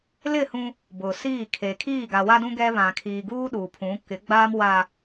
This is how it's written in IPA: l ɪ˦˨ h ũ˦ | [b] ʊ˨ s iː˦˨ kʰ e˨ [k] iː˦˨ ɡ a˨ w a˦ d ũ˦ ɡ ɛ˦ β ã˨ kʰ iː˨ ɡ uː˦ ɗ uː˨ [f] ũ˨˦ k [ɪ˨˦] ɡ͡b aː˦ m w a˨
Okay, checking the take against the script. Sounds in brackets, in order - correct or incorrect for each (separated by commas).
correct, incorrect, incorrect, correct